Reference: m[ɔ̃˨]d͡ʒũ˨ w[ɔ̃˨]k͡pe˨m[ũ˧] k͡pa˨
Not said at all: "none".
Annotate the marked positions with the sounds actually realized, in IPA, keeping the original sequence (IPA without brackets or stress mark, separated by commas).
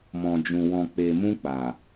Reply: ɔ̃˨, ɔ̃˨, ũ˧